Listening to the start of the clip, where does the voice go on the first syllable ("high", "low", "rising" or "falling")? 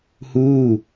falling